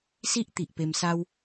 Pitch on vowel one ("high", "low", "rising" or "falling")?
high